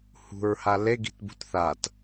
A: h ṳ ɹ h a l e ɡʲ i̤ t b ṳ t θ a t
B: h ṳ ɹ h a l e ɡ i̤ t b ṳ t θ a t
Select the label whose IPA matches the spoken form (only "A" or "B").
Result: B